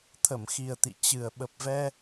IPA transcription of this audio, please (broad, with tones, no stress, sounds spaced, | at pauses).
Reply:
t̪ʰ ə˧˩ m x i˨˩ ə̯ t̪ ḭ˧˨ t͡ɕ ɨ˨˩ ə̯ ɓ ə˨˩ p̚ v ɛ˧